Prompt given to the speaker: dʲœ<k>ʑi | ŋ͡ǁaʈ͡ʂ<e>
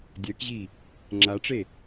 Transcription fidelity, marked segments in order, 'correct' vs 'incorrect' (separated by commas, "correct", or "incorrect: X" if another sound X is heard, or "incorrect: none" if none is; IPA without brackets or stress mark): correct, correct